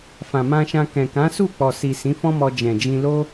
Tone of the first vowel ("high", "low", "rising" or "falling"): low